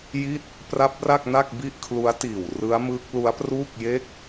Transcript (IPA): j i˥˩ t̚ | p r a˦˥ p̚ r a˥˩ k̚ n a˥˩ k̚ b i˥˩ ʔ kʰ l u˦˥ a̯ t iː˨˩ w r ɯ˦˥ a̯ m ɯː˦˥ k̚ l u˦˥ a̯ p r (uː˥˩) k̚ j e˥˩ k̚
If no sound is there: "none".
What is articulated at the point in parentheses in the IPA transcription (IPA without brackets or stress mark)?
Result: uː˥˩